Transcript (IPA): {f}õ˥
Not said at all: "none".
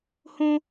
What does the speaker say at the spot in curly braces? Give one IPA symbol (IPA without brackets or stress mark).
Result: h